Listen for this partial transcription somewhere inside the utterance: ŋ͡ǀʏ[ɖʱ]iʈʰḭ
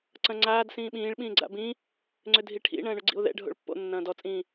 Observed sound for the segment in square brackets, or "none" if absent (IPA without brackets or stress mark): dʱ